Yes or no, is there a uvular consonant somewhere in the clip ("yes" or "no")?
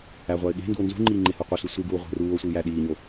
yes